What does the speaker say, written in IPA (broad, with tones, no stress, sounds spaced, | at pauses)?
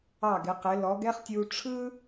ɑ˧˩ ɡ ɪ˩˧ q ɪ˩˧ l ɔ˩˧ ɡ ɛ˥ χ tʲ u˧ ʈ͡ʂʰ ɯ˥